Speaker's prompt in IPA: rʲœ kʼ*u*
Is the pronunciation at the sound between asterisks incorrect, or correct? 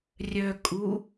correct